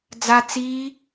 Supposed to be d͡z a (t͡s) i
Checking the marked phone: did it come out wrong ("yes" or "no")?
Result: no